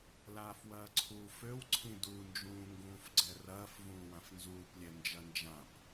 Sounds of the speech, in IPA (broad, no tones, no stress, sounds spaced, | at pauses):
l aː f w ɐː ǀʰ uː f ø w ǀʰ ĩ d u n d͡ʒ ũː ŋ ɡ ũː f ɡ͡ǀ ɛ r ɐː f v ũː w ã f n z uː p lʲ ɛ n d͡ʒ ɐ n d͡ʒ ã p